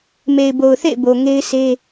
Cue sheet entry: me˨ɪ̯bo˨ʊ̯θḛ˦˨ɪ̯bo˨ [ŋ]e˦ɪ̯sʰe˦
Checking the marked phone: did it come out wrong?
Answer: no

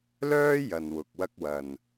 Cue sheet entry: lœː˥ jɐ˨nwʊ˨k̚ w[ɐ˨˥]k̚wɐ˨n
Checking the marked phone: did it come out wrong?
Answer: yes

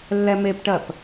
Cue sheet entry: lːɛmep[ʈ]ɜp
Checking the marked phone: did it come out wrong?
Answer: no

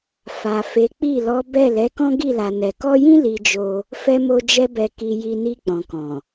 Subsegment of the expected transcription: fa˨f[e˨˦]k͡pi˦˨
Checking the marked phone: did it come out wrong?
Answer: no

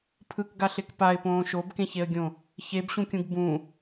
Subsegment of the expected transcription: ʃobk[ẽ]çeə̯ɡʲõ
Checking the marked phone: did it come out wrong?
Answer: no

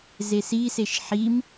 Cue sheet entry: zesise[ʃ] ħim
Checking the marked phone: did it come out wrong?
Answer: no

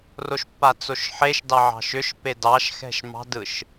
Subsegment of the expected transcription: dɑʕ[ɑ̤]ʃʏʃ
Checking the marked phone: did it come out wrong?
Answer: no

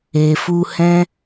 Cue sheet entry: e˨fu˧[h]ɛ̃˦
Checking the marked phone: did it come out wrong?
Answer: no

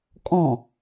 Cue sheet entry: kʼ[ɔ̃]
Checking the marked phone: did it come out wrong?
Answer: no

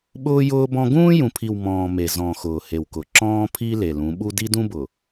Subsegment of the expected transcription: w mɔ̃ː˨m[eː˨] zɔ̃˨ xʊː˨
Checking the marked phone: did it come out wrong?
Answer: yes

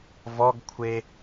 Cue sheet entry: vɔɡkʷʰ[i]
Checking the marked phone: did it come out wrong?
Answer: yes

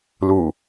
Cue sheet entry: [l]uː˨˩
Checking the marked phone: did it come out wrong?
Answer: no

